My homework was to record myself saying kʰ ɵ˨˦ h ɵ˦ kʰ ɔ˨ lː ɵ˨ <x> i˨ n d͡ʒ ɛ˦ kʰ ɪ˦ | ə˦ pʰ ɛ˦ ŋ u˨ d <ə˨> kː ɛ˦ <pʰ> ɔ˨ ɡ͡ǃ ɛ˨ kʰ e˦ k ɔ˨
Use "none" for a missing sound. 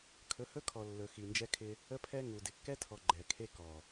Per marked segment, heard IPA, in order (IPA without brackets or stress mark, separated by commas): x, ɪ˨, tʰ